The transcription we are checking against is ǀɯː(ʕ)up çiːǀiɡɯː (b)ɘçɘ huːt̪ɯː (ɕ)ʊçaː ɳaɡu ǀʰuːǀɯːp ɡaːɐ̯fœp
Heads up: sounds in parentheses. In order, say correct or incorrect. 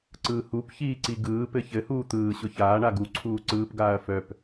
incorrect: h, incorrect: p, correct

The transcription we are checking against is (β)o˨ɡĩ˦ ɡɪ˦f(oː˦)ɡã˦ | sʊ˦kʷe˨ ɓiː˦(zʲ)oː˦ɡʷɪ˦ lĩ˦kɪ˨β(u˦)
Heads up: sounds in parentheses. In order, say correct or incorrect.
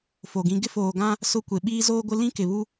incorrect: f, incorrect: oː˨, incorrect: z, correct

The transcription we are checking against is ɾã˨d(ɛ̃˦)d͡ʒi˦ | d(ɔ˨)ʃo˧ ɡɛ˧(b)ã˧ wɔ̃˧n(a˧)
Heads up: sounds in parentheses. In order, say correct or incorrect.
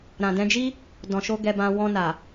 incorrect: ɛ̃˧, incorrect: ɔ̃˨, correct, incorrect: a˨

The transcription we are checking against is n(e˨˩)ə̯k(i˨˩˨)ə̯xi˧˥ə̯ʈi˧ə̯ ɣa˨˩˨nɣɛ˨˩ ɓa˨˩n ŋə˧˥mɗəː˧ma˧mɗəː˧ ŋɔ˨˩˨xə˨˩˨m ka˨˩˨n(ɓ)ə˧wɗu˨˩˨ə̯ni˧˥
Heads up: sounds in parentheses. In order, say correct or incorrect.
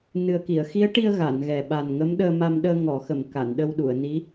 incorrect: ɨ˨˩, correct, incorrect: ɗ

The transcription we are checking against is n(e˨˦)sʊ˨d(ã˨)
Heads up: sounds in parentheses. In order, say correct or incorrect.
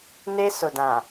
incorrect: e˦, correct

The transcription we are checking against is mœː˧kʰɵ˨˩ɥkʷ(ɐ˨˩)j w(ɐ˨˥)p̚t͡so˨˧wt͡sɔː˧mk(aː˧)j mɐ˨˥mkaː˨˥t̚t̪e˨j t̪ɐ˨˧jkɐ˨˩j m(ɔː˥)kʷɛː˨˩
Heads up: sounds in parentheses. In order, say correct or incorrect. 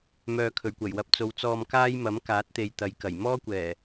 correct, correct, incorrect: aː˥, correct

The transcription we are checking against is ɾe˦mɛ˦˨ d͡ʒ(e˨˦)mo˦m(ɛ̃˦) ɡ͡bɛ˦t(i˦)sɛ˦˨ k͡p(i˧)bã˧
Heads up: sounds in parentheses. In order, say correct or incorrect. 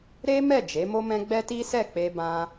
correct, correct, correct, incorrect: e˧

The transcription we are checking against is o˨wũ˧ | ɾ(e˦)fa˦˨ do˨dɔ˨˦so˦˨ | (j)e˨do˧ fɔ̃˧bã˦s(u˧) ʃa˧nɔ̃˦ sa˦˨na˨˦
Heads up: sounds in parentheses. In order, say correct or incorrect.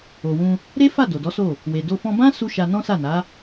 correct, incorrect: w, correct

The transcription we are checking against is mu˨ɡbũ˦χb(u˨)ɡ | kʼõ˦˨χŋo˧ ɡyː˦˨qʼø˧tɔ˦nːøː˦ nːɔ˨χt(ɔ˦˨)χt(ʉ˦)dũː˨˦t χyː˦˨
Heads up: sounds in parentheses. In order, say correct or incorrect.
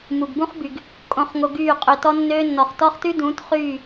incorrect: y˨, incorrect: ɔ˦, correct

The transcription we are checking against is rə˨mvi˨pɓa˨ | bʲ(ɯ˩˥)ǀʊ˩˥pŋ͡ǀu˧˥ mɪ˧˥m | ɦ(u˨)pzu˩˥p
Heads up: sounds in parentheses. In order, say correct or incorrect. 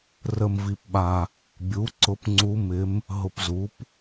incorrect: u˩˥, incorrect: ʊ˨

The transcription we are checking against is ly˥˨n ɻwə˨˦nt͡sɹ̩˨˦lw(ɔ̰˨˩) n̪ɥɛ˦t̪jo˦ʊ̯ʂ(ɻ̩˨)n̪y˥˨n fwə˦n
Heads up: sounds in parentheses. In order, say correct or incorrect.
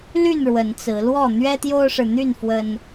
incorrect: ɔ˥˨, correct

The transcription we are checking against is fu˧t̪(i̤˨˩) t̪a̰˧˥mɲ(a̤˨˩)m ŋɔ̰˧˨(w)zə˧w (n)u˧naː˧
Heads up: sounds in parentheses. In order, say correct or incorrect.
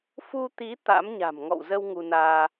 incorrect: i˨˦, correct, correct, incorrect: ŋ

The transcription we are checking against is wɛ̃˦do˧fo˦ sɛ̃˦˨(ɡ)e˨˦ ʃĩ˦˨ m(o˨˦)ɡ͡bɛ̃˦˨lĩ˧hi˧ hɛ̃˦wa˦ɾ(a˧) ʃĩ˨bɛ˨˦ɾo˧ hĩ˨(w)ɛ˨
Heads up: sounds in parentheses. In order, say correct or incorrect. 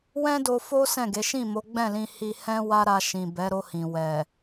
correct, correct, correct, correct

